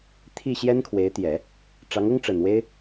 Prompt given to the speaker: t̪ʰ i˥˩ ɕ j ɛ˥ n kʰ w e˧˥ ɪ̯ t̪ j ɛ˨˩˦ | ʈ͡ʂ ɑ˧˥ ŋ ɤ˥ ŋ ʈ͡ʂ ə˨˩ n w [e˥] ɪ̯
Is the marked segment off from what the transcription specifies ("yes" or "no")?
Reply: no